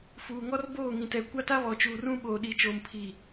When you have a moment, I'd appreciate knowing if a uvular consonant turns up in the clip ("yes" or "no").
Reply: no